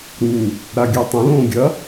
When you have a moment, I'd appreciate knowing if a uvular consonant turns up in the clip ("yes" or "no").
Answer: no